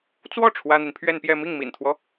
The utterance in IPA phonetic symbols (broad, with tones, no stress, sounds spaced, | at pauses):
t͡s w ɔ˥˩ ʈ͡ʂʰ w ä˥ n̪ i˨ n pʰ ɥ ɛ˥˧ n p j ɛ˥˧ m i˥˩ ŋ m ḭ˨˩ n t̪ʰ w ɔ˦